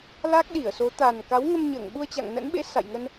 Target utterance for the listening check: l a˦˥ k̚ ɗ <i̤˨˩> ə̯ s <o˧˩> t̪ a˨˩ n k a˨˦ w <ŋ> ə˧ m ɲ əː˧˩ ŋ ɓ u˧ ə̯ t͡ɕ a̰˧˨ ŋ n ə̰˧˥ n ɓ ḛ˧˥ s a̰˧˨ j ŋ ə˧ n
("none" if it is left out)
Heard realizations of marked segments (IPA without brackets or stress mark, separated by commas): i˧˩, o˨˦, ŋ